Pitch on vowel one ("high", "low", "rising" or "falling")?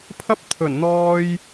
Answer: high